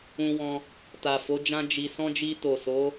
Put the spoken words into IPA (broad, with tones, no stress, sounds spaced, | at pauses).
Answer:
ũ˧ w ɔ̃˧ | t a˨ f o˨˦ d͡ʒ ã˦ d͡ʒ i˧ s ɔ̃˦ d͡ʒ i˧ t o˨ s o˨˦